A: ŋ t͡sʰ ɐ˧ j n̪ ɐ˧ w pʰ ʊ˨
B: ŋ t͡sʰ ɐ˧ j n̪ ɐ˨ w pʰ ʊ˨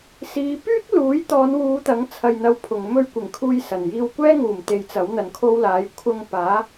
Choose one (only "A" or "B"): A